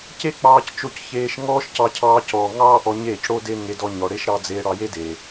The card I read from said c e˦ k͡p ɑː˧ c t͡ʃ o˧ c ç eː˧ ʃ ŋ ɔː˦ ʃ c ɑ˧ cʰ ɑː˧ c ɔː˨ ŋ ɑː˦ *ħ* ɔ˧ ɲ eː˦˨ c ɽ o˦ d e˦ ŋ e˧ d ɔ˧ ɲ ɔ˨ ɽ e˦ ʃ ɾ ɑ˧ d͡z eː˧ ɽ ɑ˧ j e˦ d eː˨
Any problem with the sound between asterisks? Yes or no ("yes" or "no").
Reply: yes